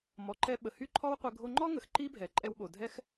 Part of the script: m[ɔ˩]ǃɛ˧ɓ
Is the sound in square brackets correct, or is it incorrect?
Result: correct